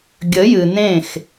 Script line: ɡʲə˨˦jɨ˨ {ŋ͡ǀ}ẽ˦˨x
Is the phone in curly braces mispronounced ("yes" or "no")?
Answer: yes